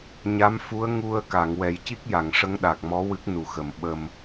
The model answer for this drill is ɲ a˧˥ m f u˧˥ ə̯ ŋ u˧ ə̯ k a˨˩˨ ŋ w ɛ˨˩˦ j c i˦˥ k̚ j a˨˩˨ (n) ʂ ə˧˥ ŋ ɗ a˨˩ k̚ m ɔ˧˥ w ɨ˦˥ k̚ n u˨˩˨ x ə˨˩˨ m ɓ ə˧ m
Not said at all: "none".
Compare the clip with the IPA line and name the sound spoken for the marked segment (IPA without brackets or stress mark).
ŋ